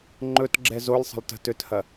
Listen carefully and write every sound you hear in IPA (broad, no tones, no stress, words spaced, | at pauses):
ŋ͡ǃɵtɡ͡ǁɛ zolʲ sˤə̤lˠtə̤tøthɐ